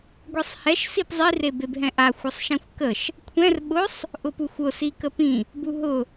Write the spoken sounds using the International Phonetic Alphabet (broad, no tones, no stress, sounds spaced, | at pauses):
ɡʷ e sˤ h ɛ ʃ s i p zˤ i r e b e b ɦ ɛ̃ ʔ a xʷ ɜ sˤ ʃ ɛ̃ xʷ k ə ʃ | kʷʰ ɛ̃ r ɓ ʊ sˤ | ʔ ʊ p u xʷ ʊ s i k ə p ĩ | b u ɦ ʊ